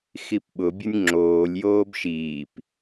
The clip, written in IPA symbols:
x i p ɓ ʊ bʲ ʊ nʲ ŋ͡ǁ oː lʲ j oː b ʃ iː p

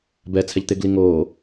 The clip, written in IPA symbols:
b ɛ t͡sʰ ɛ ʎ t̪ ɪ ɡ l i ŋ oː

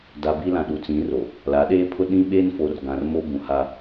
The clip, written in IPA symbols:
d a˨ b i˦ l ã˨ ɗ u˨ t͡s ĩ˨˦ r o˨ | l a˨˦ ɗ eː˦ pʰ ʊ˦ ɗ ĩ˦ ɓ eː˦ n f o˨ r ɡ ã˨ r m o˦ b ũ˨ h a˦

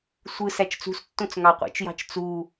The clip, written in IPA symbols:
sʷ ɯ s æ t͡ʃ t͡s ṳ s tː õ t͡s ŋ ɑ qʷ ḭ t͡ʃ j ɑ̤ t͡ʃ t͡s u

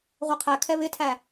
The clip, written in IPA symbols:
ʁʷ ɤ qʰ æ kʰ ɛ β ɪ tʰ æ

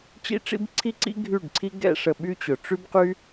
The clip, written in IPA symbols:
t͡ɕ ḭ˦ ʈ͡ʂ ḭ˦ b ǀʰ i˦ ǀ ḭ˦ ɡʱ y˦˨ ɖ ǀʰ i˦ ɡ ɛ̰˦ ʂ ə˧ ɓ y˦ t͡ɕ ʊ˨ ʈ͡ʂ y˦ b q y˦

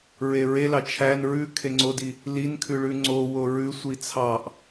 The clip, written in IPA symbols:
ɹ e ɹ e l ɑ t͡ʃʰ æ n ɹ ʉ kʰ e ŋ͡ǀ o d i | l i n kʰ ʉ ɭ ʉ ŋ͡ǀ o w o ɹ ʉ sʷ i t͡sʰ ɑ ʔ

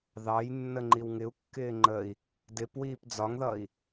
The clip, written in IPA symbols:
ð ɑ j nː ə ŋ͡ǃ i w ŋ ɪ u̯ kː ɪː ŋ͡ǃ ə i̯ | d ɪ p w iː p d͡z ɒ ŋ ð ʌ i̯

